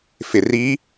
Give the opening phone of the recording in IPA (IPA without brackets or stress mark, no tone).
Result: f